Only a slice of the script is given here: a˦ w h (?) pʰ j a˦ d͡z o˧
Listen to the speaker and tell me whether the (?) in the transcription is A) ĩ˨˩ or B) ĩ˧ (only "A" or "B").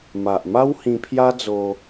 B